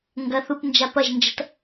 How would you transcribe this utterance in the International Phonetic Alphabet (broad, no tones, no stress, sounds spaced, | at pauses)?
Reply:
ŋ ɡ ɐ θ u p n d͡ʒ a p ɐ ʒ n d͡ʒ ɐ t